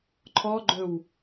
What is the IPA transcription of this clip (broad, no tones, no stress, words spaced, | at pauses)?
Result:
ǃʰɔɡ͡ǃɵw